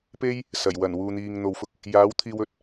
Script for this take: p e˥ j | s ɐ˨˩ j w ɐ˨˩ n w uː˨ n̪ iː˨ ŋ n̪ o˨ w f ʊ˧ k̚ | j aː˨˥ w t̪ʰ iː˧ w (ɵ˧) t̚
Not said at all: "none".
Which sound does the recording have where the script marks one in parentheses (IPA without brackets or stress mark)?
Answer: ɵ˧